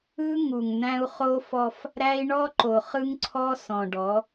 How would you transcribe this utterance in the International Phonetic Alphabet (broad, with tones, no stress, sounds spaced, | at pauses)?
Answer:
ɯ˦ ŋ u˨ ŋ n̪ æ̃˦ u̯ χ o˦ f ɔ˦ f | ɾ æ˦ i̯ ɳ ɔ˦ ǃ o˨ χ ɯ˦ ŋ ǀʰ ɔ˦ s ɔ̃˨ ɖ ɔ˨˦